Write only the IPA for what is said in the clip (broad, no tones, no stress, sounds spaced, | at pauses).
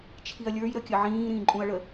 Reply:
t͡ʃʰ i ɐ̯ lʲ ə˞ j ɾ ə kʲ ə ʕ ĩː ɾ ĩː ǃʼ ũ ɐ̯ ɭ ə